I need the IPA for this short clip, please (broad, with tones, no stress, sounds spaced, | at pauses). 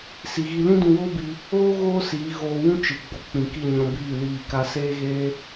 s i˨ ɣ i˧ l ĩ˦ d ũ˧ w oː˦ b i˧ | oː˦ ɣ oː˦ s iː˨˦ ɣ oː˧ w ũ˦ t͡ʃ ɨ˨ ɡ͡b o˨ k͡p ĩ˨ k i˦˨ ɲ ɔ̃˧ b iː˦˨ l iː˦˨ k a˦ s eː˦ ɣ eː˦